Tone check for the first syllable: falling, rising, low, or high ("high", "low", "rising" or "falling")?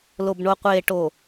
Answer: low